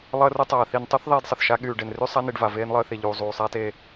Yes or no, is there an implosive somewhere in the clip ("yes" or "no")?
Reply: yes